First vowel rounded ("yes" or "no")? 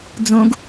yes